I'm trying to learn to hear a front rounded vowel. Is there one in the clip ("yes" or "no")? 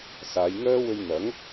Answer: yes